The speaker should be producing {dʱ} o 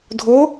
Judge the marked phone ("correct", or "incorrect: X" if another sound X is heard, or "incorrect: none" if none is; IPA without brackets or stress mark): correct